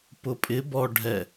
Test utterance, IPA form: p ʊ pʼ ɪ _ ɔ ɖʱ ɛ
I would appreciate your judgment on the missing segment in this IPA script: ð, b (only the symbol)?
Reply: b